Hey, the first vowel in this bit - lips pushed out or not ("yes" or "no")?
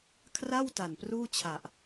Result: no